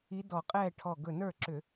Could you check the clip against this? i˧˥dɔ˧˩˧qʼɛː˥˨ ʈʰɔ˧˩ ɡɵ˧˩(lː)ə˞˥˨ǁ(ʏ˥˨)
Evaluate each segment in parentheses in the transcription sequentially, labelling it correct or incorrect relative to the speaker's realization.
incorrect: n, incorrect: ʏ˧˩˧

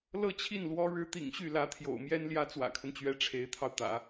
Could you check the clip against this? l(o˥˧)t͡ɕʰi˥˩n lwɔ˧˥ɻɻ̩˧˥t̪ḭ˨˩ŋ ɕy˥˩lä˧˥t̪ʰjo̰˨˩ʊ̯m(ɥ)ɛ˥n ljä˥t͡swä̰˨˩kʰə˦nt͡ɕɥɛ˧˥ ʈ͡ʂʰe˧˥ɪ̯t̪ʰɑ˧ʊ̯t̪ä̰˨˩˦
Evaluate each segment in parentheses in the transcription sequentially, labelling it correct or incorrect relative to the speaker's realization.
incorrect: ɤ˥˧, incorrect: j

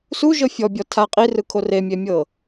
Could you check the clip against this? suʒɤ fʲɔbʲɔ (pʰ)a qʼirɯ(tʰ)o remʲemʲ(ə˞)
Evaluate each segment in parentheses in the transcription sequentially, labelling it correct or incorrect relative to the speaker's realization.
incorrect: tʰ, incorrect: kʰ, incorrect: ɤ

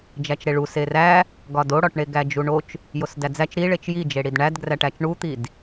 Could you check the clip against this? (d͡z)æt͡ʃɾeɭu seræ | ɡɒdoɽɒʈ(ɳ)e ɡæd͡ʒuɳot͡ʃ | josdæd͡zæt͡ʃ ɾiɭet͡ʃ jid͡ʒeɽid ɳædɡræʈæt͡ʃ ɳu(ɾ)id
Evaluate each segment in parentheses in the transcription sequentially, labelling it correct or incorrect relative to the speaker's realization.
incorrect: d͡ʒ, correct, incorrect: t̪

